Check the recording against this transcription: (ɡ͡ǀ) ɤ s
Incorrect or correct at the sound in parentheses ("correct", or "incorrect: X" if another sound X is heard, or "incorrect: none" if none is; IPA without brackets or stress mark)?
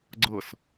correct